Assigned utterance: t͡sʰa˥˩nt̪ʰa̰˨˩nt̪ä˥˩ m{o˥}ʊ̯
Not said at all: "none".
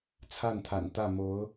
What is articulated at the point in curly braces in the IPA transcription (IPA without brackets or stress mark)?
o˧˥